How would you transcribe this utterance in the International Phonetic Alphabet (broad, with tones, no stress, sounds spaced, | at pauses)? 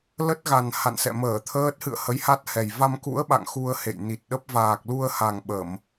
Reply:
l ə˦˥ t̚ ɣ a˨˩ n h a̰˧˨ n s ɛ̰˧˨ m əː˧˩ t̪ʰ əː˦˥ t̚ h ɨ̰˧˨ ə̯ h ə˨˦ j h a˦˥ t̚ h ɛ˨˩ j v a˧ m k ṵ˧˥ ə̯ ɓ a̰˧˨ ŋ x u˧ ə̯ h ḛ˧˨ j n i˨˩ t̚ ɗ ə˦˥ p̚ v aː˨˩ k̚ l u˧ ə̯ h a˨˩ ŋ ɓ ə˧˩˨ m